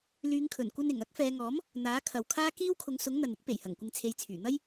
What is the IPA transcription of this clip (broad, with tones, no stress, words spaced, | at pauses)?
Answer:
lyː˨˧ŋkʰɵ˨˩nkʷɐ˧nɪ˨˩ŋ ɐ˥k̚fɛː˨˧ŋɔː˨˥m | n̪aː˨˥kʰɐ˨wkʰaː˥ kiː˥wkʰʊ˨˧ŋsʊ˨˥ŋ n̪ɐ˨nɪ˥k̚pe˨˩jhɐ˨˩ŋ kʷɪ˧ŋt͡sʰe˨˧jt͡sʰyː˨˩ n̪ɐ˥j